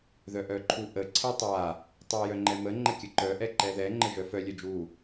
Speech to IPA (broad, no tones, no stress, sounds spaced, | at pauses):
ð œ ʔ œ ǃʰ u ʔ ə ǀʰ ɛ tˤ a | tˤ a j œ ŋ͡ǃ ɛ m ə ŋ͡ǃ ə kʲ ə ǃ œ ʔ ɛ ǃ ɛ ð ɛ ŋ͡ǃ ə ʒ œ f œ lʲ œ d͡ʒ u